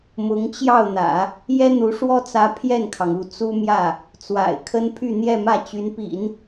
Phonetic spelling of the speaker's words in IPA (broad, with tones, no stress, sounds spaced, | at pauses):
m ʊ˧˥ ŋ t͡ɕ j ɑ˥˩ ʊ̯ n̪ ä̰˨˩˦ | j ɛ˥ n̪ u˧˥ ʂ w ɔ˥ t͡s ä˧˥ pʰ j ɛ˥˩ n kʰ ɑ˩ ŋ u˥˩ t͡s u˥ m j ä˥˩ | t͡s w a̰˨˩ ɪ̯ kʰ ə˥ n pʰ y˥˧ n̪ j ɛ˥˧ m ä˥˩ t͡ɕ y˧˥ n p ḭ˨˩˦ n